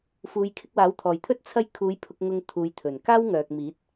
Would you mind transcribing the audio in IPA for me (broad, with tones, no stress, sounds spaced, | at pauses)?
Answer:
f uː˨˧ j kʰ ɪ˧ k̚ w aː˨˥ w t̪ʰ ɔː˨˩ j t̪ʰ ɵ˥ t̚ t͡sʰ ɐ˧ j kʰ uː˨˧ j pʰ ʊ˧ k̚ ŋ ʊ˨ ŋ t̪ʰ uː˨˧ j t̪ʰ ɵ˨˩ n k aː˥ w ŋ œː˨ k̚ m iː˨˥ t̚